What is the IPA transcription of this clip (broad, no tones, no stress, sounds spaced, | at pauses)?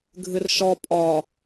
ɡʱ ɨ r ʃ ɔ pʼ ɒ